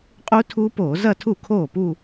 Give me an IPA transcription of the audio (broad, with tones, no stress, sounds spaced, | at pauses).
qʼ u˦˥ tʰ uː˦˥ p oː˧˩˧ z ɐ˥˧ tʰ u˥˩ kʰ oː˥˩ p u˥˧